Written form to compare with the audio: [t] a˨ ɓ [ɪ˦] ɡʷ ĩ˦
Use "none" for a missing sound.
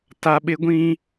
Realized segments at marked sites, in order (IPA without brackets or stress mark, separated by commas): t, ɪ˦